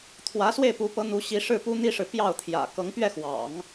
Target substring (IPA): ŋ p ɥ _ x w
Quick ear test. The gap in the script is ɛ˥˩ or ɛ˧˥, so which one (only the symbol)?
ɛ˥˩